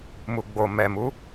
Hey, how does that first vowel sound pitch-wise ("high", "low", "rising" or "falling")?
low